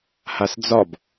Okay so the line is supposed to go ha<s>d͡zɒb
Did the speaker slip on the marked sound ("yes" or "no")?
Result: no